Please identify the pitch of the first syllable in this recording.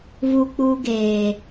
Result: high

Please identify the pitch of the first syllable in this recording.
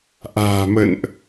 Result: low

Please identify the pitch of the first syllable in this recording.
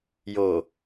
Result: low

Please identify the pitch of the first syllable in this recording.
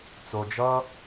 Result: low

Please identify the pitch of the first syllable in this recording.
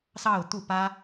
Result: falling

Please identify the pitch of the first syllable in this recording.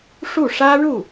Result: falling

